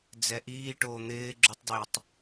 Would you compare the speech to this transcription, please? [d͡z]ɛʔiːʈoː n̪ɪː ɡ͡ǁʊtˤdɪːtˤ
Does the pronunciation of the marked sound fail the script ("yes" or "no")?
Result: no